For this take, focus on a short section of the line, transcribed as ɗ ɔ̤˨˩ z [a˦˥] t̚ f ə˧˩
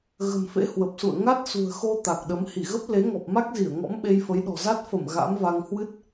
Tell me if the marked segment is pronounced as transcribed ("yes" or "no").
yes